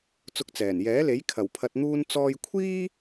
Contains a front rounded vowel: no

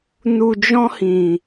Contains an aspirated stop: no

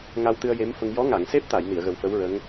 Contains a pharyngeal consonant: no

